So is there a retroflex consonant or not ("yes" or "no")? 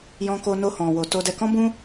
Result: no